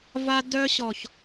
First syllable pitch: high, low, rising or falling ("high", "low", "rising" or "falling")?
high